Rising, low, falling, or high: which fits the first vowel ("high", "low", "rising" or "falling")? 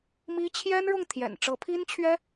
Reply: high